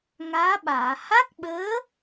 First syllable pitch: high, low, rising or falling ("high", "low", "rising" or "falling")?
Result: rising